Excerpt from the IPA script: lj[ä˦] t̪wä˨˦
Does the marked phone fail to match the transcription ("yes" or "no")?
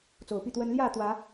yes